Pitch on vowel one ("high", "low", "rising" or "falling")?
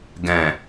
low